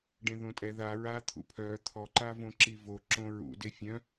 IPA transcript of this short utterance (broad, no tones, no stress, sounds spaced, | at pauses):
ɖ ẽ ð õ tʼ ɛ ð a ɹ a t̪ʰ ṵ pʰ œ t̪ʰ ɔ ǃ a v õ ǁ i v o ǁ õ ɹ ṵ d e fʲ œ̃